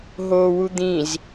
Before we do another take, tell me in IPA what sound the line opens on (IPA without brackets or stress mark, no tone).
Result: ɦ